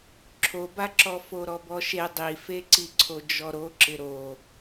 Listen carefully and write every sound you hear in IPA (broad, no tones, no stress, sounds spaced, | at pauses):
ǁʰ o b a ǁ ɔ f o ɾ ɔ b ɔ ʃ e dˤ i f e ǀ i ǀʰ o d͡ʒ ɔ ɾ o ǁ ɪ ɾ o